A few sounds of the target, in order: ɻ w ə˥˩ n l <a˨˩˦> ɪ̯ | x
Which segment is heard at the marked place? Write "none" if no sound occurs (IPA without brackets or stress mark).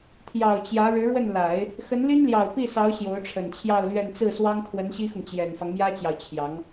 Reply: a˨˩˦